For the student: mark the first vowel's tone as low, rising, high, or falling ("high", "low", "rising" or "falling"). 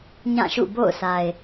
falling